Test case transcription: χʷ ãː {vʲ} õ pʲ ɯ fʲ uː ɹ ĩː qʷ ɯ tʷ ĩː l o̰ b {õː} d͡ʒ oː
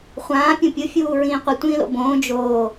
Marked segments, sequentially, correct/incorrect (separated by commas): incorrect, correct